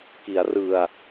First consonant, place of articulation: velar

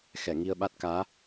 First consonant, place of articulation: velar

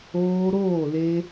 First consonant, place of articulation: alveolar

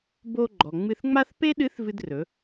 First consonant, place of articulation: labial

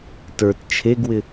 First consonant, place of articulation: alveolar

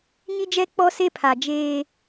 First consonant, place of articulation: palatal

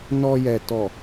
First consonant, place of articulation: alveolar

